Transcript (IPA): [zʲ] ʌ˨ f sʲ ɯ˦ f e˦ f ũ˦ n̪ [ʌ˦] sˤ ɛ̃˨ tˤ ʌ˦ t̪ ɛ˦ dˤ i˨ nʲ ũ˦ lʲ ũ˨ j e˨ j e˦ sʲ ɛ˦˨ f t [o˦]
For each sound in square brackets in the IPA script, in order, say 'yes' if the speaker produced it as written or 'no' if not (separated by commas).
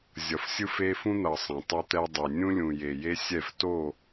yes, no, no